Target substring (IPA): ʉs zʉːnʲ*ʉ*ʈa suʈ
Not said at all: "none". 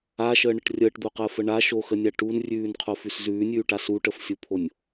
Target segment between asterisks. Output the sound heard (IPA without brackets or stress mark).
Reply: ʉː